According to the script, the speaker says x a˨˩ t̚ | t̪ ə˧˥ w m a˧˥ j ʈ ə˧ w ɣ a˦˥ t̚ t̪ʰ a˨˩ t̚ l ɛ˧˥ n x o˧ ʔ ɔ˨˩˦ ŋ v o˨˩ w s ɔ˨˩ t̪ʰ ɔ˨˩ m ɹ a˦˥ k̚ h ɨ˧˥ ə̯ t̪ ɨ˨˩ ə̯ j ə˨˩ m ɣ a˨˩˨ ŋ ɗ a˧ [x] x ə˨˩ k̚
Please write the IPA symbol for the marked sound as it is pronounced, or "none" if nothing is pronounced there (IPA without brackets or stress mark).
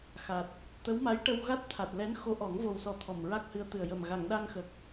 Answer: ŋ